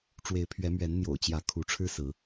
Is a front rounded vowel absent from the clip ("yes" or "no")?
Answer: yes